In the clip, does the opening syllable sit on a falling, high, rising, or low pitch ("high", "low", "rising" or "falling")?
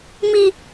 high